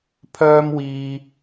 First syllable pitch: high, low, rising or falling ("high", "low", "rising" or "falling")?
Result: high